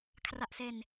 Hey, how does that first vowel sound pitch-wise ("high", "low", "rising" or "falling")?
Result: low